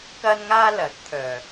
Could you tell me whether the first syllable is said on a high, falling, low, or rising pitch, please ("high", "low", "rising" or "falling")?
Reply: high